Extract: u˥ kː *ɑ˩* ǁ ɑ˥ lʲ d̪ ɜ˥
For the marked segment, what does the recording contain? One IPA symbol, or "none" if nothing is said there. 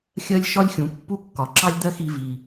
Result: ɒ˩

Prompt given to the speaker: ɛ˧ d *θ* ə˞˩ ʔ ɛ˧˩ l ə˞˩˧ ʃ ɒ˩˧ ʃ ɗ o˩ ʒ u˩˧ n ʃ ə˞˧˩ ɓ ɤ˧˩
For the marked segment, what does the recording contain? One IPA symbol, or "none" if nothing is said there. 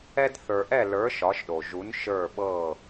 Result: θ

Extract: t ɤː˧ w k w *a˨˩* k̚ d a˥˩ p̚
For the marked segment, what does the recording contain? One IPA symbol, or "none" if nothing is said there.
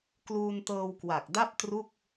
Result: a˨˩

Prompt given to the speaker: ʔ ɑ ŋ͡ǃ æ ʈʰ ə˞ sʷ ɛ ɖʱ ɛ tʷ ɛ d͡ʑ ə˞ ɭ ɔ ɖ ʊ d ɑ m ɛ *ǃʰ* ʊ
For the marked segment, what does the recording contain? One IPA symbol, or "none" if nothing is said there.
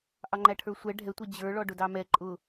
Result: ǃʼ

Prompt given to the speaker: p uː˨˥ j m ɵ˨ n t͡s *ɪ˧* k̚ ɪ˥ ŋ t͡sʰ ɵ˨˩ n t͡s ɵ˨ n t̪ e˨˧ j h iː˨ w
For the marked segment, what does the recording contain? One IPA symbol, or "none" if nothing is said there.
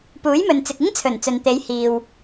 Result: ɪ˨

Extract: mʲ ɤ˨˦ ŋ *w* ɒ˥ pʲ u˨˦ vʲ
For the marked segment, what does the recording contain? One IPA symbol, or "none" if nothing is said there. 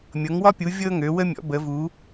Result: w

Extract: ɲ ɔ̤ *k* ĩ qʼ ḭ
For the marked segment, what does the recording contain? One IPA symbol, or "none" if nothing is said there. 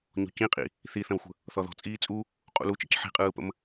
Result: c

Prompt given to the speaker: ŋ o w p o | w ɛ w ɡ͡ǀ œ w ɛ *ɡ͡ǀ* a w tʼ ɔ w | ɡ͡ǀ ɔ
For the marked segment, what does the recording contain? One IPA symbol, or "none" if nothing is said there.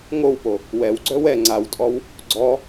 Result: ŋ͡ǀ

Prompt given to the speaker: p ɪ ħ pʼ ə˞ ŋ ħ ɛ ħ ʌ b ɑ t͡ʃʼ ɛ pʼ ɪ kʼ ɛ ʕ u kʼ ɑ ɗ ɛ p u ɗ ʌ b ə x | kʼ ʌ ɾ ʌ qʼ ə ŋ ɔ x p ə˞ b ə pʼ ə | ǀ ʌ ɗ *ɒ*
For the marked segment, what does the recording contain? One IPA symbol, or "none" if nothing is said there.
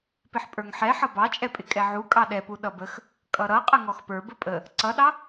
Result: ɑ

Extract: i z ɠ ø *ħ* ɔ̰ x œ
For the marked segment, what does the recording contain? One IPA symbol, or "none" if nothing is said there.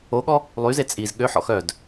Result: ħ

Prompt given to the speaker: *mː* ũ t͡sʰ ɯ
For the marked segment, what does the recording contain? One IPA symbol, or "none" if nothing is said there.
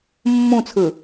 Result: mː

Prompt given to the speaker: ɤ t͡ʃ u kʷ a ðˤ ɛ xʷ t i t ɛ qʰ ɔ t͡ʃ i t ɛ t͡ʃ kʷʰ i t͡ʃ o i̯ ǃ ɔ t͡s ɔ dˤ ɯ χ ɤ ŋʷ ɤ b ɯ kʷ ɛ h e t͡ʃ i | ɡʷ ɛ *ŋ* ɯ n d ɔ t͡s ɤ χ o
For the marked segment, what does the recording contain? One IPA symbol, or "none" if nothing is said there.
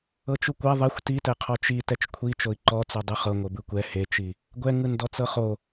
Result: ŋ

